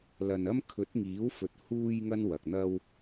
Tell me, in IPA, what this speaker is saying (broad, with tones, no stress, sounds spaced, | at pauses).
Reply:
l ɐ˧ n ɐ˥ m kʰ ɵ˨˥ t̚ ŋ iː˨˥ w f ɵ˨˥ t̚ h uː˧ j ŋ ɐ˥ n w ɐ˨ k̚ n̪ ɐ˥ w